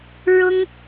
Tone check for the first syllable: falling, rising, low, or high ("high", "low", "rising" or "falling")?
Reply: high